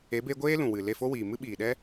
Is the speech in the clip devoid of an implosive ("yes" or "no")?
no